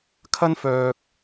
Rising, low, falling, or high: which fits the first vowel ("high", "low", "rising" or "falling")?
high